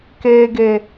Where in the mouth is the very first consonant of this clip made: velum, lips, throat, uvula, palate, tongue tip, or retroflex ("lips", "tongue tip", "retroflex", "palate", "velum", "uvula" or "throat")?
velum